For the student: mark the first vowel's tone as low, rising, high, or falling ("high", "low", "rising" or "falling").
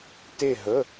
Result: falling